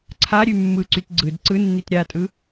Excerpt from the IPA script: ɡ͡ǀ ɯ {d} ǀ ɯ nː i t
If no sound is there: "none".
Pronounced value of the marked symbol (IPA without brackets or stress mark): d